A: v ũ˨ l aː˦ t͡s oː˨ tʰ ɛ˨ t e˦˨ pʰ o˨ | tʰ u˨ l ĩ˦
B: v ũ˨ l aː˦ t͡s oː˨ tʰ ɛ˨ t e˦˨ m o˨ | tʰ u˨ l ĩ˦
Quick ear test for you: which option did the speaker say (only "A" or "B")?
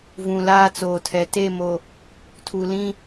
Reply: B